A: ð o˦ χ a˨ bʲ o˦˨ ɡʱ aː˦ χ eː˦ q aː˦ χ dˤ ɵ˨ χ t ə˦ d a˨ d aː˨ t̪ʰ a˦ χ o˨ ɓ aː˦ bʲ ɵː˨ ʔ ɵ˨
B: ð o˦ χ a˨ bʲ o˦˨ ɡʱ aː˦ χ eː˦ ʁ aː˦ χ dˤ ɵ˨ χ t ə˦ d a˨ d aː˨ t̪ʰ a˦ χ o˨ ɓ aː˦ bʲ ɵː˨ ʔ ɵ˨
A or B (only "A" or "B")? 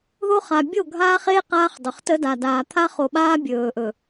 A